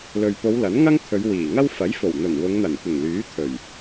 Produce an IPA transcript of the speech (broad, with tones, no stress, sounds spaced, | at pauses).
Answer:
l ɵ˨ ɥ p o˨˧ w l ɐ˨˥ n ŋ ɐ˥ ŋ t̪ʰ ɵ˨˧ ɥ w iː˨˩ ŋ ɐ˥ w f ɐ˨˥ j f o˨˩ w n̪ ɵ˨˩ n w ʊ˨˧ ŋ n̪ ɐ˨˩ n kʷ ɪ˨˩ ŋ l yː˨˥ t̪ʰ ɵ˨˩ ɥ